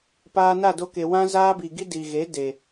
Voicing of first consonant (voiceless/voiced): voiceless